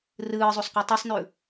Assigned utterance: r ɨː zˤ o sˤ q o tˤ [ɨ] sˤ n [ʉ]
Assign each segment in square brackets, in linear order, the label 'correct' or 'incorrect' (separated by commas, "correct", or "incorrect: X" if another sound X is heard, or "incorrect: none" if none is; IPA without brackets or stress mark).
correct, correct